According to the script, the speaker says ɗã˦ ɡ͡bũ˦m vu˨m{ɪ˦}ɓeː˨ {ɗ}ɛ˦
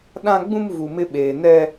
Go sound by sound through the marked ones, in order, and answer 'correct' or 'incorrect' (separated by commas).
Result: correct, incorrect